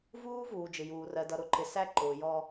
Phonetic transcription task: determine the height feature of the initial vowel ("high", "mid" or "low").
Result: high